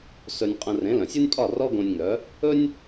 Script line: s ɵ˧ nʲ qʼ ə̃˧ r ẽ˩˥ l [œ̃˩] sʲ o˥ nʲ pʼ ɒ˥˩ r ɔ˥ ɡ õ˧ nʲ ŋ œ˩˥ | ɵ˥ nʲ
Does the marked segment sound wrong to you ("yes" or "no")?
no